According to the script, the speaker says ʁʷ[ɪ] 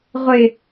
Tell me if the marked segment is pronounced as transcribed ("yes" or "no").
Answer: yes